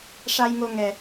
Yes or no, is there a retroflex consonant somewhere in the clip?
yes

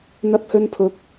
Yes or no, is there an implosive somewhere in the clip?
no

